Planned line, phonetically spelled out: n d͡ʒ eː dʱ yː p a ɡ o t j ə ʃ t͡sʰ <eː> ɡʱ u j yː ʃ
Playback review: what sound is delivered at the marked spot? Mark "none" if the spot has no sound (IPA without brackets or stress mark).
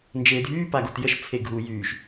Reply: e